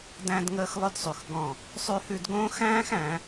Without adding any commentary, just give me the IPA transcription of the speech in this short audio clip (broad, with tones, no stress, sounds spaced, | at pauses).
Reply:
d æ̃˦ d ŋ əː˦ x lˠ ʊ˦ d sˤ ʉ˨ x ɡ ɔ̃˦˨ | sˤ ʉ˦ h ʉ˦ d ɡ õː˦ x æ̃ː˦ x æ̃˨˦